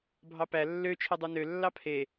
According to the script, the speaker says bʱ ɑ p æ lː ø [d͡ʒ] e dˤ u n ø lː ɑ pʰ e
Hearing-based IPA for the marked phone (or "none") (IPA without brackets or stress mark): t͡ʃʰ